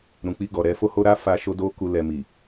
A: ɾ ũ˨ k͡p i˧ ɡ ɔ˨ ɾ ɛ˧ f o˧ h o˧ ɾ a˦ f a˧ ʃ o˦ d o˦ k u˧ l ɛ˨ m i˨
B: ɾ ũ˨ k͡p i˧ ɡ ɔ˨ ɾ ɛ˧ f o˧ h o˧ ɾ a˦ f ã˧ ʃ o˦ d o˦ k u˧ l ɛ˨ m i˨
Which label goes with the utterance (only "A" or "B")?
A